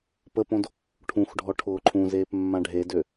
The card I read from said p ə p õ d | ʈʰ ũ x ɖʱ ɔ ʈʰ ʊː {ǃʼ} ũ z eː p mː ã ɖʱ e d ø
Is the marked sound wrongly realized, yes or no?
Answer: yes